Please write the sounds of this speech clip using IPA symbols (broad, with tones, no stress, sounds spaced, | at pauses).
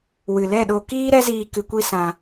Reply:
w ɨ˨ l ɛ˦˨ ɗ o˧ k iː˦ ɾ ɛ˦ z iː˧ k ɨ˧ kʷ i˦ s ã˧